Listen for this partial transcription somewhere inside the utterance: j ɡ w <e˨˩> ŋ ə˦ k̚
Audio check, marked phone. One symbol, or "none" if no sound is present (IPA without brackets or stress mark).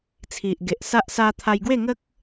e˥˧